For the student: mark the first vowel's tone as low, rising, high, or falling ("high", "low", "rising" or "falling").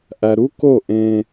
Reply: low